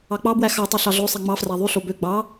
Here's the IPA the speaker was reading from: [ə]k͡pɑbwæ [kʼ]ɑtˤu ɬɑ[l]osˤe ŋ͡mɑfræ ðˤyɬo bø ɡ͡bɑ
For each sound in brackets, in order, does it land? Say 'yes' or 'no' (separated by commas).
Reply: no, no, no